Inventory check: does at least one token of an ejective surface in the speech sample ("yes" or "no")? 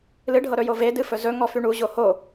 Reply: no